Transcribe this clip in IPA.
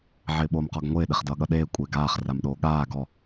ʕɪːɓoːmqɔɡŋʷɪː ɗɪχdʌːɠʌɗeː kʷʼɪːɡaːχ ramɗoːɠaː ɡɔ

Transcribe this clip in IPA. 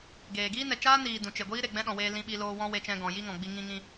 ɡeː˨ɡiː˦ nɛ˨t͡ʃaː˦niː˨ dũ˨ t͡ʃe˨ɡʷiː˦ ɾe˨ɡ͡bɛ̃˦ɗɔ̃˨weː˧ lĩ˧ɓi˧loː˧ wɔ̃˦we˧t͡ʃɛ̃˧ ɡɔ̃˨ji˦ŋɔ̃˨ɡ͡bi˧ ŋĩ˧ŋĩ˧

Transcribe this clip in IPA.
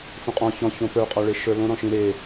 fõqʼɔ̃ çɔ̃çõ pə˞qʼɒɭe ʃə˞lõ ɾɔ̃ʃĩ ɾe

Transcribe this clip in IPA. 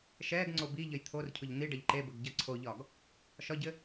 ʃɛɡŋ͡ǀo biʎəj t̪ʰorcʰʊʎ n̪iɖɐʎ ǃebəɡ ɟɐǀʰoʎɒɡ | ʃɒɟɘ

